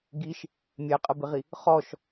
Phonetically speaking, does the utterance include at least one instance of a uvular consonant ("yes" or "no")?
yes